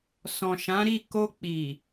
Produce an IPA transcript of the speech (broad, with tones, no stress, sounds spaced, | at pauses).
s ɔ̃˨ ʃ ã˨˦ ɾ i˦˨ k o˧ k͡p i˨